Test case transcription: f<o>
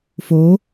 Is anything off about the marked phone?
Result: no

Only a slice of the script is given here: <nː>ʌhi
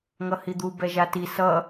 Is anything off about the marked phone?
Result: yes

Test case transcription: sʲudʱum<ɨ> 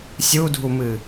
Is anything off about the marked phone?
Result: no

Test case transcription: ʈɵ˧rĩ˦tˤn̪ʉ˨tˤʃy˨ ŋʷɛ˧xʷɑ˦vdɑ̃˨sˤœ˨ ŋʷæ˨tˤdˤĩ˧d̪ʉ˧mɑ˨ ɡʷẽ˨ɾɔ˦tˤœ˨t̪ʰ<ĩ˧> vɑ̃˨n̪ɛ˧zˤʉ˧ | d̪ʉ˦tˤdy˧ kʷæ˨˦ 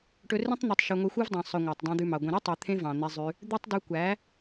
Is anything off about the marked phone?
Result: yes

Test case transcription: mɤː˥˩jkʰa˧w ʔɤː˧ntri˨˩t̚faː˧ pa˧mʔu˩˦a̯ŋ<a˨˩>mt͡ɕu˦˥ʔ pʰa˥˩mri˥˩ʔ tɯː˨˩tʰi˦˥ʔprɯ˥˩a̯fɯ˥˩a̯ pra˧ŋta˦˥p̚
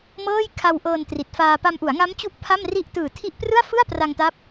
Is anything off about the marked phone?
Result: yes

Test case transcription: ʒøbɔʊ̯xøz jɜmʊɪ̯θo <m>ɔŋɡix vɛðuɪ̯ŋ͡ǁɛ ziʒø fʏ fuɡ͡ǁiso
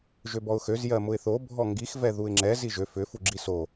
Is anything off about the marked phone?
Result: yes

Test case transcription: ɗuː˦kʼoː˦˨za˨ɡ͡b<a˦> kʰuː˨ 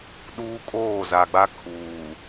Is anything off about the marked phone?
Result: no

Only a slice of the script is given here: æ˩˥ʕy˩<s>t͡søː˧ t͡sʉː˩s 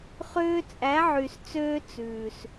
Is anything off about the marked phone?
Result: no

